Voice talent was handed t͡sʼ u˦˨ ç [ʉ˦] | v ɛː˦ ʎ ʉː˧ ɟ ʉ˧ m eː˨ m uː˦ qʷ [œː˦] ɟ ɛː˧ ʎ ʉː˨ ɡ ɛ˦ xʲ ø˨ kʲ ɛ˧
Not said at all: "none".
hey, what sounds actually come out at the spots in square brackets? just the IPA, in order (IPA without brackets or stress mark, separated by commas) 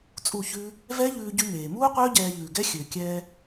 ʉ˦, œː˦